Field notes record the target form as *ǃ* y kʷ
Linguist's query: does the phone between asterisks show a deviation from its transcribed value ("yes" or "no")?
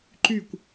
no